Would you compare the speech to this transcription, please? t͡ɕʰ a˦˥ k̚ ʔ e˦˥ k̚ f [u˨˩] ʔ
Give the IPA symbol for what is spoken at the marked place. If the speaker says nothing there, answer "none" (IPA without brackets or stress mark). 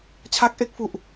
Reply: u˨˩